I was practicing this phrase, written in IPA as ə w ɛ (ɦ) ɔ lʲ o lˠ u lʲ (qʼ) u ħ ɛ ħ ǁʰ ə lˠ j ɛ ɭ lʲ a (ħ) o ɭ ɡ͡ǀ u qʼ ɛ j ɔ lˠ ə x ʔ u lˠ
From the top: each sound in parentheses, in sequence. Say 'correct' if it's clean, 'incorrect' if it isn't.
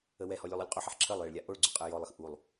incorrect: h, correct, incorrect: ʔ

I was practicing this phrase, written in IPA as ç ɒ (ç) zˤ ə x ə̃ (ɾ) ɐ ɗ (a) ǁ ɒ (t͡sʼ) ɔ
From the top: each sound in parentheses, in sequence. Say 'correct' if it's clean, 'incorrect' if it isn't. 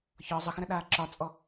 incorrect: none, correct, incorrect: aː, correct

